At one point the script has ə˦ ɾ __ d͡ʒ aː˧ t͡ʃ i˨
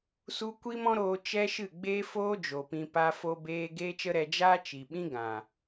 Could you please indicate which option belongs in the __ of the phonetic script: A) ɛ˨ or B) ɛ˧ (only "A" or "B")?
B